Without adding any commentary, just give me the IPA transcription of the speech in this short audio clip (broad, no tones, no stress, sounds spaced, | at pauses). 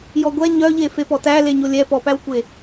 j ɔ ɡʷ ɛ ɲ œ ʎ e f e p ɔ t æ l e ɲ o lʲ ɛ p ɔ p æ w kʷ e